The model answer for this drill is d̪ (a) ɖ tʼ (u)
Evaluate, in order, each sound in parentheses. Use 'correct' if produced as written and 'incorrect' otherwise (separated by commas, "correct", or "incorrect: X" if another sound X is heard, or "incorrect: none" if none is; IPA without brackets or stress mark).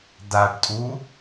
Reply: correct, correct